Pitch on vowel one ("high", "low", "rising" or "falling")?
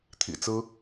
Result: low